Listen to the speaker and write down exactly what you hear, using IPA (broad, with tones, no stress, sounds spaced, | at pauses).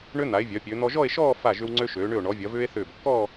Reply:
ɳ ø˧ n̪ a˩˧ e̯ vʲ œ˩˧ pʲ ø˩˧ n̪ ɔ˧ ʒ ɔ˥˧ e̯ ʃ ɔː˥˧ f a˧˩ ʒ ʏ˧ w ŋ͡ǀ ø˧ ʃ øː˩˧ ɳ ʏ˧˩ o̯ ɳ ɔ˩˧ vʲ ɐ˩˧ v ʏː˧ e̯ θ ʏː˧˩ b kː ɔː˥˧